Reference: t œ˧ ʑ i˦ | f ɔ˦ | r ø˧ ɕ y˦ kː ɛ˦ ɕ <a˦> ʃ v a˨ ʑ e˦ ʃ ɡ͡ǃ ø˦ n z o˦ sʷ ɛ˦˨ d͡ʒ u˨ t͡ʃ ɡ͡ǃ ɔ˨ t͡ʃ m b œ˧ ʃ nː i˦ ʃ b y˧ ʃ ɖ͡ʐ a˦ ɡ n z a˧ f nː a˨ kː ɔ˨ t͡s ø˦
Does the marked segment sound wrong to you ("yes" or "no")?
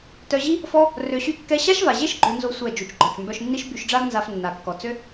no